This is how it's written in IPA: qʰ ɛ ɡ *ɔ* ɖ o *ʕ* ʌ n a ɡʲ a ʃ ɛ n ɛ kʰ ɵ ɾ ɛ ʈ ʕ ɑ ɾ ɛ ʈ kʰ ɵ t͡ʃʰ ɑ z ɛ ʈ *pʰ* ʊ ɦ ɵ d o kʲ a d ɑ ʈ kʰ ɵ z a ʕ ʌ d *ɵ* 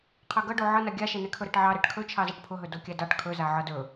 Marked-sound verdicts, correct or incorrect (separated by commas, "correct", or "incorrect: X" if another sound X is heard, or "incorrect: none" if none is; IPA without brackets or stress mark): incorrect: ʌ, correct, correct, correct